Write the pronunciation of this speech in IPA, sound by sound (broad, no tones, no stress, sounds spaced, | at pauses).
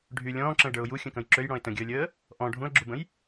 ɖʱ y lʲ ɔ̃ː ǁ ə̃ ɪ̯ ɖ ə˞ ʊ̯ j u xʲ ə̃ k ə̃ j ǁ ø j ɽ ɔ̃ ɪ̯ t ə̃ ɡʲ əː lʲ əː | ʔ ɔ̃ ɖʱ ũ ə̯ ɡ͡ǁ u b ə̃ j